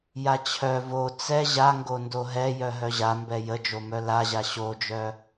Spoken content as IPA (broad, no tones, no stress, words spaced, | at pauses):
jat͡ɕʰœ vo t͡sɛ ʑaŋɡo ndoɦɛjœ ɦœʑambɛ jəd͡ʒomœ laʑa ɕod͡ʒœ